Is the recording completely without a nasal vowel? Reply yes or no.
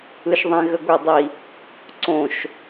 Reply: no